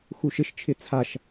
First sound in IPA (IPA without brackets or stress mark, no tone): x